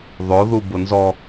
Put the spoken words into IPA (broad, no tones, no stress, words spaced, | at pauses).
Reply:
ðˤo ðubʊnzɔ